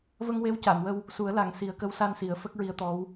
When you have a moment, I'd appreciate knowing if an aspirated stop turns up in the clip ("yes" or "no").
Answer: no